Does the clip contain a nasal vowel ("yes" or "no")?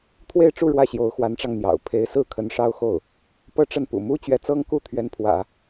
no